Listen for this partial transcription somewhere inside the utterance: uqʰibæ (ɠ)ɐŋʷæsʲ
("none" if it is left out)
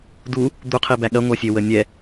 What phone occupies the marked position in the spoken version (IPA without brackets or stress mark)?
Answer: ɠ